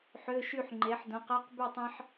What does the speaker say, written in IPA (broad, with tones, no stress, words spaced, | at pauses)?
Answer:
ħø˧˥˧ʃy˥˨ħŋ͡ǃe˨˥ħ dõ˨˥qɑ˧˥˧qby˥˨tˤɑ̃˥ħ